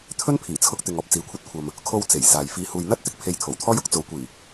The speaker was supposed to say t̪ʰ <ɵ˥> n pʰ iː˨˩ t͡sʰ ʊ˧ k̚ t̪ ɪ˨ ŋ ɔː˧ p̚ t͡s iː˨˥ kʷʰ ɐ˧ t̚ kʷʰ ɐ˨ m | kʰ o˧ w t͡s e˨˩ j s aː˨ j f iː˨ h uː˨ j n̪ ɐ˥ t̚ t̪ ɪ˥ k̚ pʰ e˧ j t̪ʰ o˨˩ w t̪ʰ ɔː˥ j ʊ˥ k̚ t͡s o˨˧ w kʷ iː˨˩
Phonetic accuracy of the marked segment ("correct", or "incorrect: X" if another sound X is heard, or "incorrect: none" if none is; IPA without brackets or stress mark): correct